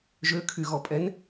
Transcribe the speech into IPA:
ʒøkʰyɣɔpʼɛn

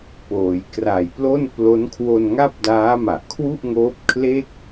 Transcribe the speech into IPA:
poː˩˦jkra˨˩jplo˥˩n plo˦˥n kʰwo˧nŋa˥˩p̚daː˦˥ma˨˩ʔ kʰwu˥˩ʔŋoː˦˥p̚kʰle˥˩k̚

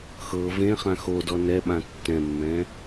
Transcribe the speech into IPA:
xɤ vẽ χãxodɔ nɛɓã tːɛ̃mːɛ̃

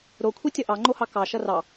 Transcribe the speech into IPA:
ɾokʷʰi tʲʌʔɑŋ͡ǃohɑ kɑ ʃʌrɑ

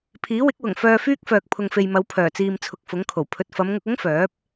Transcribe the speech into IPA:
pʰiː˨˥wɪ˨˥k̚wʊ˨˩ŋ fœː˧ fyː˥k̚fœː˨k̚ pʰʊ˨ŋfe˨jmɐ˨˧w pʰœː˨˩t͡siː˨mt͡sʰʊ˨k̚ fʊ˨˥ŋkʰo˨˩wpʰɵ˧t̚ fɐ˨˧mŋʊ˧k̚ʊ˥ŋ fœː˨˥p̚

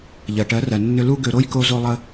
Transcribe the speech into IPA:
ʎɜ˨ ʈɜ˨˦rɜ˨ nːʏ˧lu˦ɡø˧ɾo˦j ko˦zo˦lˠə˦

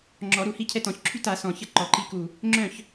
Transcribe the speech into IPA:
ŋ͡ǁɔ˨˩˦ ɾu˧˩hi˥˨cʰɛ˥˨t ɔ̃˨˩˦çǁʰy˥˨ta˨˩˦ sɔ̃˧˩çə˥˨ ǃɔ˨˩˦ǃi˦ku˧˩ | ŋ͡ǁœ̃˥˨ç

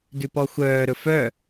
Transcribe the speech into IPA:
dʉpɔxʷœː ɾɵfœ

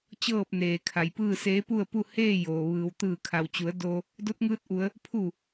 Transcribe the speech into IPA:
t͡ɕɤː˥˨p̚neː˩kʰa˩jpɯː˥˨ seː˧˥pu˥˨ə̯pu˥˨ heː˥˨ joː˩ ʋɯː˩w t̪ɯː˧˩kʰa˩wt͡ɕu˩˧ə̯ do˧ | do˧˥t̚ŋɯː˧t̚ʔu˩˧ə̯ | pʰu˧˩

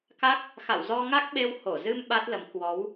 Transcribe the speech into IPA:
ka˦˥k̚ | xa̰˧˨wzɔ˧ŋa˦˥k̚ɓe˧w ho˧˩zɨ˧m ɓa˦˥t̚lə˨˦m kwɔ˨˦w

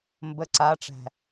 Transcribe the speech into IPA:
mbə ǀaʈ͡ʂæ̤

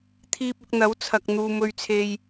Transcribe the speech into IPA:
t̪ʰiː˧p̚ʊ˧k̚n̪ɐ˨˥wt͡sʰɐ˨k̚ n̪uː˨mɵ˧ɥt͡sʰe˧j

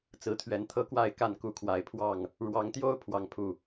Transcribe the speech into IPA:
t͡sɹ̩˨˦t̪ʰɥɛ˨˦n t̪ʰɤ˦kwa˥˨ɪ̯ ka˥˨nku˦kʰwa˨˩ɪ̯ pʰwɑ˥˨ŋ | ɻwɑ˨˦ŋt̪jo˦ʊ̯ pʰwɑ˦ŋpʰu˥˨

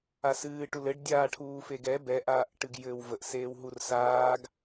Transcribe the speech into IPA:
asɨːʈu lɘɖdʲaːʈʰuː feɡɛ bɛʔaːʔʈɨɡ jɘːwvəʔseːwɦur saːɡ

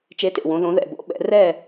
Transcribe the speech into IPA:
t͡ʃe˨˥tḛ˩wõ˩˧ ðõ˩˧ðɛ̰˩bo̰˨˥ ɓɛ̰˩˧rɛ˥˨

